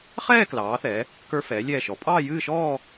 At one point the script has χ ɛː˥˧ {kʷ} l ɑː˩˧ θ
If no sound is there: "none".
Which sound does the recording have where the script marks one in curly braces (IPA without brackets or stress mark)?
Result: k